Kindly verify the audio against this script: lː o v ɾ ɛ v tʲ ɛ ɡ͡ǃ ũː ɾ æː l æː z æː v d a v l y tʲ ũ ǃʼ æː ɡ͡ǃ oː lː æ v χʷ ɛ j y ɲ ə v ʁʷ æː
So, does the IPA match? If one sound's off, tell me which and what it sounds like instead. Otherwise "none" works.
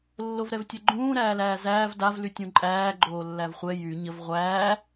none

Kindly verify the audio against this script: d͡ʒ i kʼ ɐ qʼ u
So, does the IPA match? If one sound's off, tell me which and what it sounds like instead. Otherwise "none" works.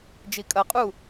none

